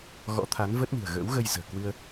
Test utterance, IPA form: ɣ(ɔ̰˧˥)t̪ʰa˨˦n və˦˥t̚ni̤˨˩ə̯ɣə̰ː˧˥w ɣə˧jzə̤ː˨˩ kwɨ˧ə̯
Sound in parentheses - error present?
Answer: no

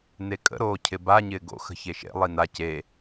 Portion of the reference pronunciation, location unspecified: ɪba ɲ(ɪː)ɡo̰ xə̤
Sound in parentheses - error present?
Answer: no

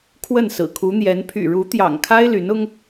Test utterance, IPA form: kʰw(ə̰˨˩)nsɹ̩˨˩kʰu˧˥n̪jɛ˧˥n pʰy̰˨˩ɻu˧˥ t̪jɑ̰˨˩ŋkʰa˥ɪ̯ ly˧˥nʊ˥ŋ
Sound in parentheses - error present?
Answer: yes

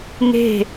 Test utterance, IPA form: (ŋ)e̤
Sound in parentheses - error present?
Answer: no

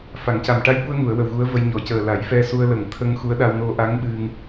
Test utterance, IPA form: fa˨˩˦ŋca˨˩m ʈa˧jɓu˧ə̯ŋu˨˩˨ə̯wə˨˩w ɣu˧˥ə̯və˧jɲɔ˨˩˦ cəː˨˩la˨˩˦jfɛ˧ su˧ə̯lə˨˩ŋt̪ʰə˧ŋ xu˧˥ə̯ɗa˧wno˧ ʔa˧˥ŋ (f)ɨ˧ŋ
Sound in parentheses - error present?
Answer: yes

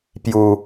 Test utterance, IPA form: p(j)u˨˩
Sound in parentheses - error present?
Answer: no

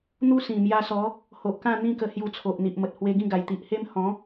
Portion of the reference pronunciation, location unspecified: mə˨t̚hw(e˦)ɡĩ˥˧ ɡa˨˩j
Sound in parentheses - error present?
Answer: yes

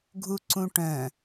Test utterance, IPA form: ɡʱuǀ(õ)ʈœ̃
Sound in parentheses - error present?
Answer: yes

